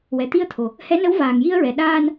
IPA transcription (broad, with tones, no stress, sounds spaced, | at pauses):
w ɛ˨˩ t̪ i˧ ə̯ t̪ʰ o˨˩ | h ɛ˧˥ n ə˧˥ w v aː˨˩ ŋ j i˧ ə̯ ɹ ɛ˨˩ ɗ aː˧ n